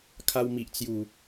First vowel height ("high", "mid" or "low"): low